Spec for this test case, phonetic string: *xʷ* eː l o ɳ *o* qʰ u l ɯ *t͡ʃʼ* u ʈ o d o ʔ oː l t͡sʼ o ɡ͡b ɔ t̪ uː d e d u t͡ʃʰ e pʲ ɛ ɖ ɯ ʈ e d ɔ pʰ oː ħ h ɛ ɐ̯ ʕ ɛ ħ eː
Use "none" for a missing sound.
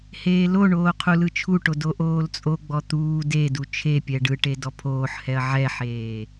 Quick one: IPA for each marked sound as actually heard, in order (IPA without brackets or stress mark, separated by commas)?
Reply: h, oː, t͡ʃʰ